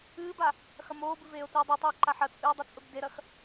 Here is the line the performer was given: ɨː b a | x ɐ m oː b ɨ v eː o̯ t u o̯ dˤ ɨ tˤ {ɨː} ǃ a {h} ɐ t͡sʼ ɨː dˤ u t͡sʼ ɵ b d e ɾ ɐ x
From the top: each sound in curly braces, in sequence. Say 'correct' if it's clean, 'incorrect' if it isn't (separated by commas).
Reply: correct, incorrect